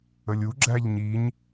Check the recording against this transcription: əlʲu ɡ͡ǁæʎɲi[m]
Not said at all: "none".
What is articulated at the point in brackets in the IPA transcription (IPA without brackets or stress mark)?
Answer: ɲ